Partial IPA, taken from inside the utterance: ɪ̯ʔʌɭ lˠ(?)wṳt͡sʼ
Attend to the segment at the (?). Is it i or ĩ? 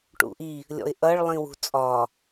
ĩ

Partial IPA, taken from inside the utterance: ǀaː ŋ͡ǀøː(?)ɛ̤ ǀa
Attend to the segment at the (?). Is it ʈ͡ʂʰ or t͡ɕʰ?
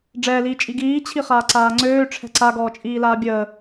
ʈ͡ʂʰ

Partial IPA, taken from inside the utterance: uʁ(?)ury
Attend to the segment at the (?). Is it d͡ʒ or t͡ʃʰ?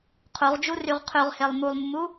d͡ʒ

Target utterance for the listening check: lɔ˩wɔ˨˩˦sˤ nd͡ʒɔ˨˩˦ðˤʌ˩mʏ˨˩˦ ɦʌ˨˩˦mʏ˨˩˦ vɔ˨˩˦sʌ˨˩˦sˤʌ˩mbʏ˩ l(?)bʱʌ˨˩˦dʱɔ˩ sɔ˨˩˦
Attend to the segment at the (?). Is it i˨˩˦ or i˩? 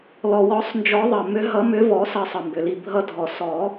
i˩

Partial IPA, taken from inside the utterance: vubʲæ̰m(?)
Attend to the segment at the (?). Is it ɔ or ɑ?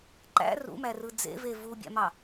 ɑ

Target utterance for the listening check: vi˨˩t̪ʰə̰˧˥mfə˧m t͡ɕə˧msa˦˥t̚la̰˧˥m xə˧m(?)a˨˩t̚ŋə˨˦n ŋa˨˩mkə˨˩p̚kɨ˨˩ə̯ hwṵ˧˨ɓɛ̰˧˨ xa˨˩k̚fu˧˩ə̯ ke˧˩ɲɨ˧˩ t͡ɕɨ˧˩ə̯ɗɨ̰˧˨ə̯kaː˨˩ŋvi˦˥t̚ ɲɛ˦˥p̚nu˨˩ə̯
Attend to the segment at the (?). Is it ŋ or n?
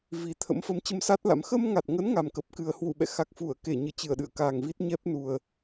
ŋ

